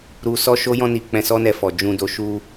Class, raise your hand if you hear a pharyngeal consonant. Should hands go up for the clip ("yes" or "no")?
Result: no